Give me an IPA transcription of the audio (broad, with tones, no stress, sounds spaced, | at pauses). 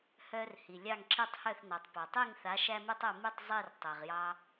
h œ˧ r h i˩ lʲ ɑ˥˩ ŋ ǁ i˥˩ tˤ h œ˥˩ θ n ɑ˩ tˤ p ɑ˩ tˤ i˥˩ ŋ θ a˩˥ ʃ æ˥ m e˥ tˤ œ˥˩ m i˥˩ tˤ zˤ i˥˩ r tˤ ɛ˩ ʁ j ɑ˧